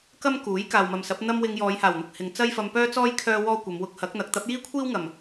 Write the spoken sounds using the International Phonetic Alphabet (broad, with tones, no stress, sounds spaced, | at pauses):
k ɐ˥ m k uː˨˥ j k aː˨ w m ɐ˨ m s ɐ˨˥ p̚ n̪ ɐ˥ m w ɪ˧ ŋ j ɔː˨˧ j h aː˨˩ w n̪ ʊ˨ k̚ h ɪ˨ ŋ t͡s ɐ˥ j f ɐ˧ m p œː˥ t͡s ɔː˥ j kʰ œː˥ w ɔː˥ kʷ ɐ˨˧ m w ʊ˧ k̚ h ɐ˨˥ k̚ n̪ ɐ˨˥ k̚ t̪ ɐ˨˥ p̚ j iː˥ kʷʰ iː˥ w ŋ ɐ˨˩ m